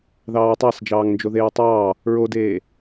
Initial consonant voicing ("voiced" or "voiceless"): voiced